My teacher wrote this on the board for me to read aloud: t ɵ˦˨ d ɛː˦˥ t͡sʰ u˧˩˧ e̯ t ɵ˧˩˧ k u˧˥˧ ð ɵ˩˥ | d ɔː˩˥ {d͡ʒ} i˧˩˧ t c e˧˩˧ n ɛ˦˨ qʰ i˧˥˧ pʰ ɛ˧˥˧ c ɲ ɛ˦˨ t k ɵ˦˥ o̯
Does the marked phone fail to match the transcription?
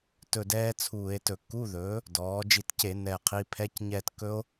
no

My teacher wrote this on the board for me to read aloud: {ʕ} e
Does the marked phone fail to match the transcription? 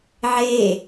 no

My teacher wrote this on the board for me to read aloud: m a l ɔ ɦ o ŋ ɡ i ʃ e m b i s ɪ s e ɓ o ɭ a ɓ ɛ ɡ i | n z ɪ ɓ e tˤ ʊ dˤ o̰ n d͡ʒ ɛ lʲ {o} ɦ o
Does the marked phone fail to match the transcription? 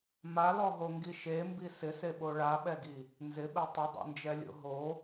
yes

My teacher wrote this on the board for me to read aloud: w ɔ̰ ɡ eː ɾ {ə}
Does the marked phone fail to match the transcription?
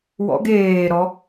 yes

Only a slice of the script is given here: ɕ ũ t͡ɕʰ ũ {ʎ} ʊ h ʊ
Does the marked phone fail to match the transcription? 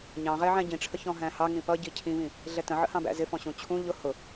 no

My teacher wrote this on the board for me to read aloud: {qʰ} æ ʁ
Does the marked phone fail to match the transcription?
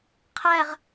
no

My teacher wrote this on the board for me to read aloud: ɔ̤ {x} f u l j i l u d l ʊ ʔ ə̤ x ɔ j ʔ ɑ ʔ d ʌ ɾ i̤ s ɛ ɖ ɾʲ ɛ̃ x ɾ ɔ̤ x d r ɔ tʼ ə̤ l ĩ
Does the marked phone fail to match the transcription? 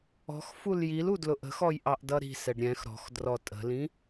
no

